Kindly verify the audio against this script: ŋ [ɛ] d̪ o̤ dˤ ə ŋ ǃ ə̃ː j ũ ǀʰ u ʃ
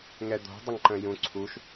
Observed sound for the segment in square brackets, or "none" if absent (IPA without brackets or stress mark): ɛ